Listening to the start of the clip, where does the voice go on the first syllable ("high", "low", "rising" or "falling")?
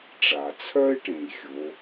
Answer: low